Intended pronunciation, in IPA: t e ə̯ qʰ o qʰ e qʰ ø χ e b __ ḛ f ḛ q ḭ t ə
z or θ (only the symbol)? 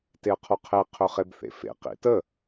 θ